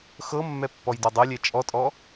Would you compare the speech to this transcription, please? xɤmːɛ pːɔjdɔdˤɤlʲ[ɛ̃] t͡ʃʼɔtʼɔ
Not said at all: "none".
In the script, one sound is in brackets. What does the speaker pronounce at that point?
ɛ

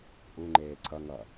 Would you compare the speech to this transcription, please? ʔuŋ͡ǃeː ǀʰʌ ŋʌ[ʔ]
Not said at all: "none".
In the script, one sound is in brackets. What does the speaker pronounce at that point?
none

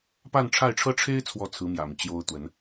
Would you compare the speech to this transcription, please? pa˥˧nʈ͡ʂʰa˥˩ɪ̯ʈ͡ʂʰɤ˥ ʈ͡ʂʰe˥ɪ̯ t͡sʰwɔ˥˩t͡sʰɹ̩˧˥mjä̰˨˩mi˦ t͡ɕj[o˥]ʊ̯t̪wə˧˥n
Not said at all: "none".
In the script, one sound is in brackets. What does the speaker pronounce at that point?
o˥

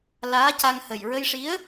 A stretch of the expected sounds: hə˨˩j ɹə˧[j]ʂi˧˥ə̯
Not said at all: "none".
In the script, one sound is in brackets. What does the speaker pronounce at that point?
j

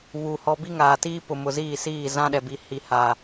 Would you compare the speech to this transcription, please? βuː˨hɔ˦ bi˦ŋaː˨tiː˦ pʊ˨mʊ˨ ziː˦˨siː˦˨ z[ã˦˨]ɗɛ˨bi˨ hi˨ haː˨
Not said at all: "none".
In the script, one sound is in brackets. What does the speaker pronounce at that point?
ã˦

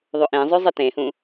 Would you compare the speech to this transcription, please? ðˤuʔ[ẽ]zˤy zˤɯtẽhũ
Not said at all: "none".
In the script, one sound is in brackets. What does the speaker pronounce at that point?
ẽ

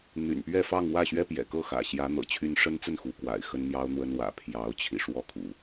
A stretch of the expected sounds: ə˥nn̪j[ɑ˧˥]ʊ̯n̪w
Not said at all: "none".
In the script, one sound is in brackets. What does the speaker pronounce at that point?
ɑ˥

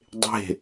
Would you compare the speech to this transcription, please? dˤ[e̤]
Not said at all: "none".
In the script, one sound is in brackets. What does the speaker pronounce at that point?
e̤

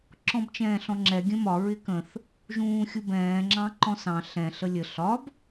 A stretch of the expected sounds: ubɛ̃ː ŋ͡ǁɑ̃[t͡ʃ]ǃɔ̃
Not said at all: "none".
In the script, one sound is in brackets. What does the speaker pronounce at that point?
none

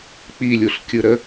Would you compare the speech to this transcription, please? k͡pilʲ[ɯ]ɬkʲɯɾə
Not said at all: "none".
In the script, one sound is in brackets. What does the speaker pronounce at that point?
u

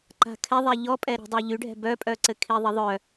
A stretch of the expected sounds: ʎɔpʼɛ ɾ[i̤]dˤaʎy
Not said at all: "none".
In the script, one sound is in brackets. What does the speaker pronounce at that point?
i̤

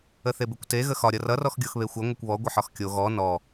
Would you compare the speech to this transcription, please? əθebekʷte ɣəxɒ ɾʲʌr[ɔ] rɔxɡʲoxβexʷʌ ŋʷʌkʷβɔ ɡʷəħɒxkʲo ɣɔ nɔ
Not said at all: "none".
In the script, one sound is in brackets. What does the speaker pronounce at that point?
ʌ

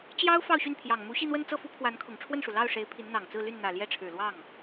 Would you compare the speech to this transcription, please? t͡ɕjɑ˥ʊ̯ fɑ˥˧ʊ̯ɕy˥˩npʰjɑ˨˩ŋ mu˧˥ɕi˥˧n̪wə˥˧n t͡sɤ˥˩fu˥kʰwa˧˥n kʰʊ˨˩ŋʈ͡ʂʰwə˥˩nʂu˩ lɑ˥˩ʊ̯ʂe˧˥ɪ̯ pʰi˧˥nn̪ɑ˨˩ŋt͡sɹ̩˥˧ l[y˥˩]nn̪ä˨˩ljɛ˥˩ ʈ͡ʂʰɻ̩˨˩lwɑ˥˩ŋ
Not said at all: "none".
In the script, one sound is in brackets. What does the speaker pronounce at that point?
y˥˩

